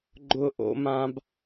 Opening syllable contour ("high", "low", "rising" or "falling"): high